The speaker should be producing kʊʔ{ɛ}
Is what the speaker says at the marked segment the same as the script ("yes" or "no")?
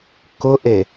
no